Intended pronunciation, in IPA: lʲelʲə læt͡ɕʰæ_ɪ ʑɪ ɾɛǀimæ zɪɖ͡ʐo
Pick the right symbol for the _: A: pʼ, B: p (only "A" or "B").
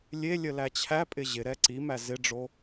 A